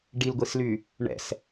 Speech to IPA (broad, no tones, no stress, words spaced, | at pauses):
ɖilɡʷisly | ɳɛ̰s